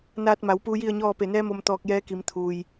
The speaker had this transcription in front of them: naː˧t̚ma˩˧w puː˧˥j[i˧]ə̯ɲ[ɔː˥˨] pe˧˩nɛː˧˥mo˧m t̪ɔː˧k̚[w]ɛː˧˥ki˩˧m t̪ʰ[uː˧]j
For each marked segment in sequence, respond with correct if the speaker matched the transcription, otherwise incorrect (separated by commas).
incorrect, correct, incorrect, incorrect